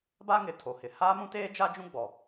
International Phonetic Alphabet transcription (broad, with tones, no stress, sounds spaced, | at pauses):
b a˦ ŋ ɪ˨ tʰ o˨ h ɪ˨ h aː˦ m ũ˦ t eː˦ d͡ʒ a˦ d͡ʒ ũ˦ ɡ͡b ɔ˨